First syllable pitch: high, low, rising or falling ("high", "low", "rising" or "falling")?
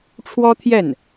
high